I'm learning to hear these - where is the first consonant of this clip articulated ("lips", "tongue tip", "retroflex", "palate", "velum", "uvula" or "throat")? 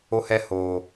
throat